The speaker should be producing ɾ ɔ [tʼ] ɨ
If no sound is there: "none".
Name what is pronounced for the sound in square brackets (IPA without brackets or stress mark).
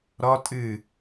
tʼ